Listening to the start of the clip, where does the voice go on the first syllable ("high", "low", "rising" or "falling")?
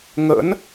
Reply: rising